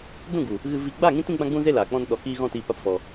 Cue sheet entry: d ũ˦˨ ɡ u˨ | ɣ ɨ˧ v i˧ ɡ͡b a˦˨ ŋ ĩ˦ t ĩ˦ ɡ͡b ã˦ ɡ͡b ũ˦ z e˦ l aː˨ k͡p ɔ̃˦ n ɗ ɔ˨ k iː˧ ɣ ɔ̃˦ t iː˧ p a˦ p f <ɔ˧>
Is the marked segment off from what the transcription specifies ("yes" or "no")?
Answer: no